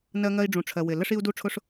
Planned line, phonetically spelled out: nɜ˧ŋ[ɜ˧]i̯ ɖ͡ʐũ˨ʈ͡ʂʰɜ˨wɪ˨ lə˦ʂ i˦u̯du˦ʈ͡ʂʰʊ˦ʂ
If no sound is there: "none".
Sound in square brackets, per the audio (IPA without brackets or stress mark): ɜ˧